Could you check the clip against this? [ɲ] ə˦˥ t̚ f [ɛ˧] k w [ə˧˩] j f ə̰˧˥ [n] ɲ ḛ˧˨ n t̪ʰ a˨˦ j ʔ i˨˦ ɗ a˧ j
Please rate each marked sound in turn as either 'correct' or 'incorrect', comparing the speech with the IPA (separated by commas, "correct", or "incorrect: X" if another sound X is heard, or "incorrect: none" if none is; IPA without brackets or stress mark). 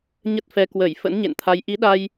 correct, correct, correct, correct